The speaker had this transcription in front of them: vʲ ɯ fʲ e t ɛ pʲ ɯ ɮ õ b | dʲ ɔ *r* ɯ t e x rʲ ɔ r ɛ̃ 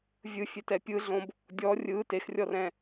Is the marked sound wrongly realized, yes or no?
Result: yes